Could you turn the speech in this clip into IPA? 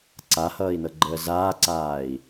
ǀ a h ʌː i̯ n ɤ ɡ͡ǃ əː z aː ǀ aː i̯

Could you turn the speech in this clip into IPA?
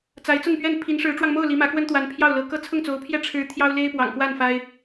t͡s a˧˥ ɪ̯ t͡s ʊ˥˧ ŋ p ɥ ɛ˥˩ n pʰ i˧˥ n ʂ ɻ̩˧˥ ʈ͡ʂ w ɑ˧ ŋ m o˥˩ ʊ̯ l i˧˥ m ä˧˥ k w ə˥ n t̪ w a˧˥ n pʰ j ɑ˥˩ ʊ̯ l ɤ˧˥ k ɤ˥˧ t͡sʰ ʊ˥˩ ŋ t͡s o˧˥ ʊ̯ pʰ j ɛ˥˩ ʈ͡ʂʰ ɻ̩˥ t̪ʰ j ɑ˥ ʊ̯ l e˥ ɪ̯ p w ɑ̰˨˩ ŋ k w a˥˩ n f a˥ ɪ̯

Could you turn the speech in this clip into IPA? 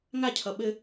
ŋ a cʰ ʌ ɓ ɘ

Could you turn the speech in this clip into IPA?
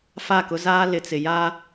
f a˦˨ k ʊ˦ z aː˦ l ɪ˨ t͡s ɪ˨ j a˦

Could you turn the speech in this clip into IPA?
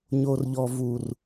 ɲ o˨ r ʎ ɔ˨ v u˨ r

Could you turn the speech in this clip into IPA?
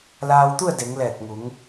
l aː˧ w t̪ u˥˨ ə̯ d e˩˧ ŋ l ɛː˧˩ t̚ ŋ u˩˧ ŋ

